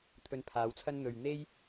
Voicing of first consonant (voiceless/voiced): voiceless